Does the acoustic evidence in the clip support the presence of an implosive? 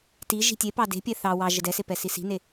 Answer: no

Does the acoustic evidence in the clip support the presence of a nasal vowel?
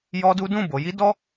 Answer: yes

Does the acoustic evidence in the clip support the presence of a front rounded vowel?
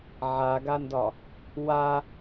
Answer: no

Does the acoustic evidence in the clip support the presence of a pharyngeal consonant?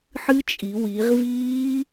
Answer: yes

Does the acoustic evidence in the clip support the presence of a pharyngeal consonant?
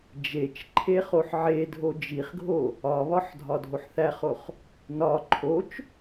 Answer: yes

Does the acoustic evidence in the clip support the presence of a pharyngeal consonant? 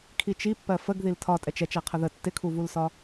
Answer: no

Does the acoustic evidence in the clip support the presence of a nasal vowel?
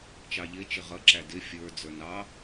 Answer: no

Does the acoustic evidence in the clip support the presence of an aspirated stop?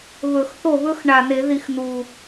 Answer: no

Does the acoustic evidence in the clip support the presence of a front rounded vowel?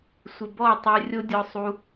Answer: yes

